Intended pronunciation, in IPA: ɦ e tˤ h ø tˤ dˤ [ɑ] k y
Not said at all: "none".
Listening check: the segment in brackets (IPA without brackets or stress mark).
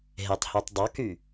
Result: ɑ